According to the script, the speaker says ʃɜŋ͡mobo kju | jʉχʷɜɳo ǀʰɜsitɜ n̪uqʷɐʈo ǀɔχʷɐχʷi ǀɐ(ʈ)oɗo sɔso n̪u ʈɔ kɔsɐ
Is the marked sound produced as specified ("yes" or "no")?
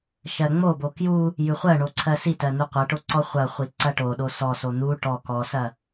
yes